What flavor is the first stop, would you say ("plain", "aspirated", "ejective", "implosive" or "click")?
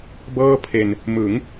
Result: plain